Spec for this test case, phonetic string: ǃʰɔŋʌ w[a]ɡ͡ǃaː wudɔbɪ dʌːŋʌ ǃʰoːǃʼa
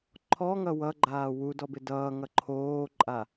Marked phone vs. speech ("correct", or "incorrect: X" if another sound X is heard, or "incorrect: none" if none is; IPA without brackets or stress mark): incorrect: ʌ